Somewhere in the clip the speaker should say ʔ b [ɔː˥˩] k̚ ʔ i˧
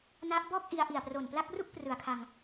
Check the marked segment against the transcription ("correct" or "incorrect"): correct